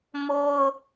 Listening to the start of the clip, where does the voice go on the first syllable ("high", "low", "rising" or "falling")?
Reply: high